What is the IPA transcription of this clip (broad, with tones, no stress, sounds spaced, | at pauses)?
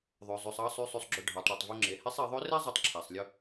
ðˤ ø˩ zˤ ʉ˩ sˤ ɑ˧ sˤ y˩˧ sˤ y˩ sˤ ɡ͡ǁ ɵ˩ ɖʱ ɑ˩˧ tˤ ɽ i˩ tˤ v y˧ ŋ͡ǁ e˩ h e˧˥ sˤ e˩˧ ðˤ ø˧˥ r e˥ zˤ ø˧ tˤ ǁʰ æ˩ sˤ lʲ ɵ˧